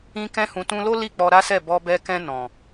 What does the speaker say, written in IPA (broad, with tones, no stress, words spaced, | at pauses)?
ĩ˧kɛ̃˧hũ˨ tũ˧lo˦ li˦˨k͡pɔ˧ɾa˦sɛ˦˨ bɔ˧bɛ˧kɛ̃˧ nɔ̃˨